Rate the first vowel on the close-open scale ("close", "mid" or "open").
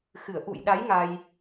close